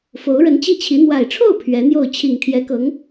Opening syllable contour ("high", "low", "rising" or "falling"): rising